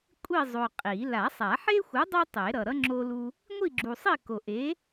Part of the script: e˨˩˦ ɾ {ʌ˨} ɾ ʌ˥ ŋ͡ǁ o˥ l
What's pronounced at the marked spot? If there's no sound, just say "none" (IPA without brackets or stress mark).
ʌ˨